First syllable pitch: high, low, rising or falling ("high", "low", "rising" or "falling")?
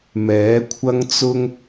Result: rising